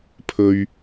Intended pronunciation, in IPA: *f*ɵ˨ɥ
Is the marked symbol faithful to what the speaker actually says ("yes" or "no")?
no